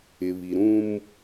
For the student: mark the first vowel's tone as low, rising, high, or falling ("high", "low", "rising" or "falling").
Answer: low